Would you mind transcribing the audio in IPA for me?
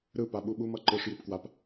ɾ ɯ p a ɓ u ɓ u m ʌ ǃ ɯ ʂ j i p k w a p

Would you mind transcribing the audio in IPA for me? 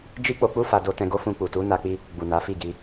d͡ʒ i˦ k͡p o˧ k͡p u˦ f a˧ d o˧ t ɛ̃˧ ɡ o˦ f ũ˧ k͡p u˨ t u˨˦ n a˧ k͡p i˦ | ɡ͡b u˨ n a˨˦ f i˦˨ ɡ i˧

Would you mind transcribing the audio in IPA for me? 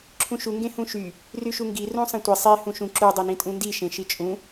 ǁʰ ũ ʃ u ŋ ɡ ẽ h ũ ʃ y | r y ʃ u ŋ ɡ i r ũ sˤ ẽ tʷ i sˤ e h ũ ʃ ũ ǁ u dˤ e n ĩ tʼ ũ n d i ʃ ẽ ʃ i t͡ʃʼ ũ

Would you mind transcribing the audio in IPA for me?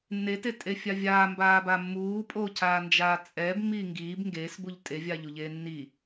nː e t e tʼ e fʲ a vʲ aː m b aː b a mː uː pʼ oː cʰ aː n d͡ʒ aː t͡sʼ ɛː b mː iː ŋ ɡ iː b ŋ ɡ eː s b u ʎ tʼ e vʲ aː ʎ u ʎ eː nː i

